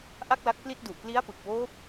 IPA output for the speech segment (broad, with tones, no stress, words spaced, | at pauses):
ʔa˥˩k̚la˦˥k̚pli˥˩t̚ du˨˩ʔpli˦˥a̯pɯ˨˩k̚woː˦˥p̚